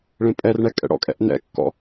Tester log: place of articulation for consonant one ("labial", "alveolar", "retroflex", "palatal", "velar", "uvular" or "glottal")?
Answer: retroflex